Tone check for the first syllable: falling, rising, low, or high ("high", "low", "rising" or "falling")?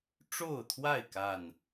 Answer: falling